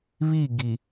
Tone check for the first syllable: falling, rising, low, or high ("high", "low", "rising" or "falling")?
falling